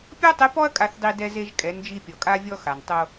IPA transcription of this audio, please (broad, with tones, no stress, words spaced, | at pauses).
pʲɔ˥tˤɪ˧˥ pɔ˥ɐ̯kʼa˧θdˤi˧ dɛ˧ze˧ʒ kʼɛ˩˧nd͡ʒi˧ pʲɔ˩kʼa˧vʲɔ˧ xa˩ntˤo˧